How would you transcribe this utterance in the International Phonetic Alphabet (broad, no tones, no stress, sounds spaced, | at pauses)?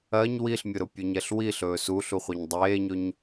ɜ ɲ w i ɬ mʲ ʊ ɾ ʊ pʲ ɵ ɲ ɛ ɬ w i ɬ ɵː s u ɬ u χʷ e ɲ dˤ eː ɲ ɵ ɲ